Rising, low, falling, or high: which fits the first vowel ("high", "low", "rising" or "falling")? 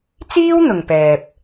high